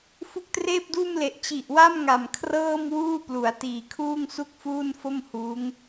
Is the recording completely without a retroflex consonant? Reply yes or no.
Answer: yes